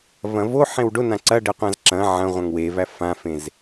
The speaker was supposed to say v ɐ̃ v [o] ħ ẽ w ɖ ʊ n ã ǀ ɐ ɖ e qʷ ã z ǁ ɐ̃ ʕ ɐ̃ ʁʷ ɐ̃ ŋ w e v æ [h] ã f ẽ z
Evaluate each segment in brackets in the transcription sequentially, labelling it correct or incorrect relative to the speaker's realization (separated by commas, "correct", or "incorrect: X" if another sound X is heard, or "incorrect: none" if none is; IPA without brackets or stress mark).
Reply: correct, incorrect: f